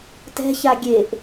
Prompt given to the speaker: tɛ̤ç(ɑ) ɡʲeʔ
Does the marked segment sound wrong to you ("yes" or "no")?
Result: yes